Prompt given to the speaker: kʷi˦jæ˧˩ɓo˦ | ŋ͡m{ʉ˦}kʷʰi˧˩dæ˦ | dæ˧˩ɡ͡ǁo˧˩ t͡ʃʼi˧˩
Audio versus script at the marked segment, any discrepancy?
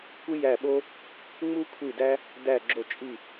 yes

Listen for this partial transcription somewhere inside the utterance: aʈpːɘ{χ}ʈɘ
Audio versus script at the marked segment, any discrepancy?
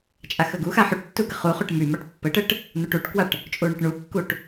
yes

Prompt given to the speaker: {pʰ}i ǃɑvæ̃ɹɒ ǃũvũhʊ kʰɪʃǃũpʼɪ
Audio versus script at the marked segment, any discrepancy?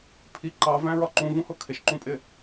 no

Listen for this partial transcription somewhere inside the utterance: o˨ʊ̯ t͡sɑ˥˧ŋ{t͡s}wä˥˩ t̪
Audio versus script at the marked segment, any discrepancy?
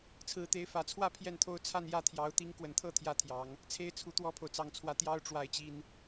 yes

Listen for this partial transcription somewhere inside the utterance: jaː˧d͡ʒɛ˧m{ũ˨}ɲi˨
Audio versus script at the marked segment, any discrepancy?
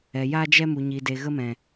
yes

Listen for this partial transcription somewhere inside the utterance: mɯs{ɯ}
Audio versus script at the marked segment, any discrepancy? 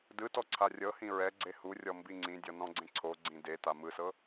yes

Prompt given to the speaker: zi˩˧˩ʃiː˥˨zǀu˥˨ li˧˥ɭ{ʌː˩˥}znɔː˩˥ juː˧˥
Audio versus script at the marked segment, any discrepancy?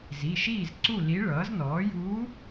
no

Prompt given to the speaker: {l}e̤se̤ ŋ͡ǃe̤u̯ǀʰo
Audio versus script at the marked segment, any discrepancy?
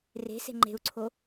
yes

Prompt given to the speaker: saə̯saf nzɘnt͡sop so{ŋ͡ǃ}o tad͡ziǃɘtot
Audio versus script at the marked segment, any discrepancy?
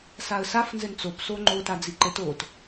no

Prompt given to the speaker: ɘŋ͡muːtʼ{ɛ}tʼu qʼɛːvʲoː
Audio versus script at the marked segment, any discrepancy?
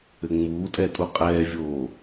no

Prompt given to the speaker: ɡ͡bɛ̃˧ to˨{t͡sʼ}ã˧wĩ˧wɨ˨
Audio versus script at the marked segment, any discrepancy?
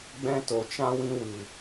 yes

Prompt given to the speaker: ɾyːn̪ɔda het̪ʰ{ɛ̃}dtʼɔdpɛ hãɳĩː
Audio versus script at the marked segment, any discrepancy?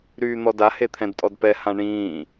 no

